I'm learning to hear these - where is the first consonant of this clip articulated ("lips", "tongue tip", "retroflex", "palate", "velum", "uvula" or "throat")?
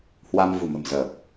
throat